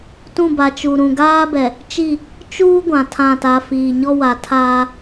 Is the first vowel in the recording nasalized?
yes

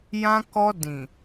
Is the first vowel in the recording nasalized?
yes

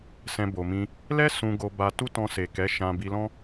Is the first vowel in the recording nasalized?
yes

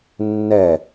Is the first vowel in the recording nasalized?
no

